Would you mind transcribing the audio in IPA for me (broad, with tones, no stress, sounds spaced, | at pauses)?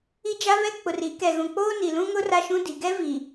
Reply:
i˦ d͡ʒ a˦ β ɛ˦ k͡p ʊ˨ r i˨˦ k ɛ˨ ɣ ũ˨ k͡p oː˦ n i˨ l ũ˦ ŋ ʊ˦ r a˦ ʃ ũ˦ d i˨ ɡ ɛ˦ v i˨